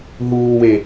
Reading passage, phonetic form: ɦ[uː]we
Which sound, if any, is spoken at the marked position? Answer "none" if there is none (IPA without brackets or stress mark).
uː